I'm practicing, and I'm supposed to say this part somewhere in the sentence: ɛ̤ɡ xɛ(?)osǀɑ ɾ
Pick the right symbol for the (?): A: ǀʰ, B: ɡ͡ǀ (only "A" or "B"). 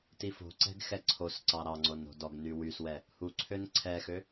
A